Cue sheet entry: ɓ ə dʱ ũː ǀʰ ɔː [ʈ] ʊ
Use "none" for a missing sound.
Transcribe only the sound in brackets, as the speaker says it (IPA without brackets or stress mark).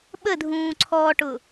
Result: ʈ